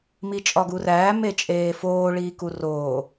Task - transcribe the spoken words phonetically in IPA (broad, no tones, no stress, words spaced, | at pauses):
mit͡ʃʼɒɡuræː met͡ʃʼeːfoː ɭiːkuroː